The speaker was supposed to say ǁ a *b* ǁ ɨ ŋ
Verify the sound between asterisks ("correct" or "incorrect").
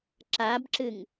correct